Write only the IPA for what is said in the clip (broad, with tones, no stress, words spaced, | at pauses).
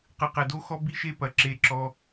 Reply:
qɨ˨qɛ˨do˦xɔ˦ bi˦ʃe˦pɐ˨ ǁe˧ǁɔ˧